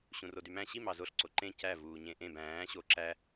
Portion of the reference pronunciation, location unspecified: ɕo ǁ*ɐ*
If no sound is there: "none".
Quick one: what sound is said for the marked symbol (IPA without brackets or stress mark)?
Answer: æ